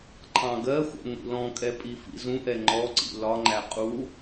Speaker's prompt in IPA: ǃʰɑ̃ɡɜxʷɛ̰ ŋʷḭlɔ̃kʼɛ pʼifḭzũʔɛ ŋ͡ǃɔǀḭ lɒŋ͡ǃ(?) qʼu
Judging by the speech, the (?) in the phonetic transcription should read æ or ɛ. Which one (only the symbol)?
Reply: æ